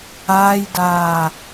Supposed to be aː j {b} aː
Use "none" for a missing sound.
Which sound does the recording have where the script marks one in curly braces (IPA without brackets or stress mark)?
d